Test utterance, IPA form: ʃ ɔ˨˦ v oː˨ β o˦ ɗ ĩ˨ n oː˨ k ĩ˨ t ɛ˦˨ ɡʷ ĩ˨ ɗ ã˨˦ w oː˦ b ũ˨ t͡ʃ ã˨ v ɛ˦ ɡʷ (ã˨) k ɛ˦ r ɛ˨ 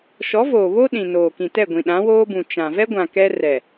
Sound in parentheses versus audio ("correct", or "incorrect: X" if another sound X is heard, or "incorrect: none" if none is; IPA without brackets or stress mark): correct